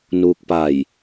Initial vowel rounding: rounded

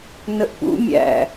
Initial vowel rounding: unrounded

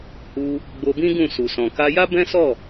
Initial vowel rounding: rounded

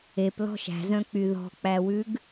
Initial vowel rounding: unrounded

